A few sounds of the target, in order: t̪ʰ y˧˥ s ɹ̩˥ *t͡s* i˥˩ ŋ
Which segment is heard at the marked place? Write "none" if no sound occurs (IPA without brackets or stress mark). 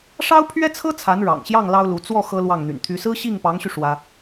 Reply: ɕ